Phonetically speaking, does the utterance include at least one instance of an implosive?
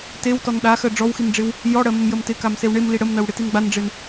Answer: yes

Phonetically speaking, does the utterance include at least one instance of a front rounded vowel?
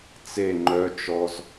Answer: yes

